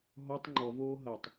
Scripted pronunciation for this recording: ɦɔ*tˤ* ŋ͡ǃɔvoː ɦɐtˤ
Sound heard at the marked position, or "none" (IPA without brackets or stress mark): tˤ